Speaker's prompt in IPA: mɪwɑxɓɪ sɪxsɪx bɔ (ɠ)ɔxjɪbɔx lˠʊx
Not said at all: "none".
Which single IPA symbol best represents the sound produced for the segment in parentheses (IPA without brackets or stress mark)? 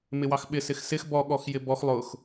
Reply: ɠ